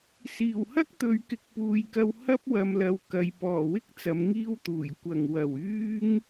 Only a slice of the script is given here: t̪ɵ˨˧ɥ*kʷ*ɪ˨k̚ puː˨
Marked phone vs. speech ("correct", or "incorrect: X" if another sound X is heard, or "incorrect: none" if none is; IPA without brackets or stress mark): incorrect: k